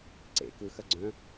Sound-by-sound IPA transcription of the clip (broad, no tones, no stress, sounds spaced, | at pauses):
ǀ ḛ k ɯ x ɐ ɡ͡ǀ œ̃